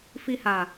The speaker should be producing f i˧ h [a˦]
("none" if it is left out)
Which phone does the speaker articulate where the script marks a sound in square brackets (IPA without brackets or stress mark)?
a˨